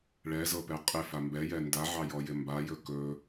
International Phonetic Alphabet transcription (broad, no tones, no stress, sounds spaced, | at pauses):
ɭ ɛ z ɤ p ɛ qʼ ɪ f a m b ɛ j ɛ n d a ʕ ɑ j ɔ j ɪ m b a j ɵ k ɵ